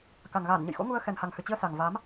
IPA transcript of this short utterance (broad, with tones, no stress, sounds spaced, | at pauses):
k a˨˩ ŋ ɣ aː˧˩ n ɲ ə̰˧˨ j x o̰˧˥ ŋ u˧ ə̯ x ɛ˨˩ n h a˨˩ ŋ h ɨ˨˩ t͡ɕ i˧ ə̯ s a˨˩ ŋ v a˨˦ m